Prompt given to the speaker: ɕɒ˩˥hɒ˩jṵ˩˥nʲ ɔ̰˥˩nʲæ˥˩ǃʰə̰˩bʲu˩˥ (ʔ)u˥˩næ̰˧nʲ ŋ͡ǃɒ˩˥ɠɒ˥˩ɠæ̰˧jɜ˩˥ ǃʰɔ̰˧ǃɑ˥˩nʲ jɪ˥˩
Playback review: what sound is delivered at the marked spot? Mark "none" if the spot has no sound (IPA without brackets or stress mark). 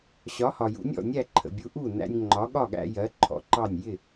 ʔ